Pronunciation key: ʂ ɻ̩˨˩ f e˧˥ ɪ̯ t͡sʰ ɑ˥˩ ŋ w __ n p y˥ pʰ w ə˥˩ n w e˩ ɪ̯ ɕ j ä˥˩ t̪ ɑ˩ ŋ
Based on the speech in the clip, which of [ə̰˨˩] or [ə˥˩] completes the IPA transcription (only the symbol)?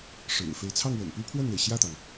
ə̰˨˩